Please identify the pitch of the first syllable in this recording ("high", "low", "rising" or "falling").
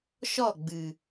falling